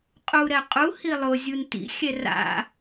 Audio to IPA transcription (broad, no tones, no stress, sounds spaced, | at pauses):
qʼ u ɾ ɛ qʼ u h i lˠ ʊ zʲ u n t ḭ xʲ ɛ r a̰